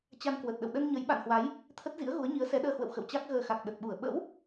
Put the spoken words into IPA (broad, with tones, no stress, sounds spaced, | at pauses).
t͡ɕ a˧ n k w ə˨˩ t̚ ɗ ə̰˧˨ w ɗ ə˧ n ɲ ə˨˦ j ɓ a̰˧˨ n h w a˨˦ j | t̪ʰ ə˦˥ t̚ z ḭ˧˥ ə̯ ɣ u˨˦ ə̯ ɲ i˨˦ ə̯ s ɛ˨˦ ɗ əː˧ h w ə̰˧˨ w x ə̰˧˨ w t͡ɕ a˦˥ k̚ ɣ əː˧ x a˨˩ k̚ ɗ ə˨˩ t̚ ɓ u˧˩ ə̯ ɓ ə̰˧˥ w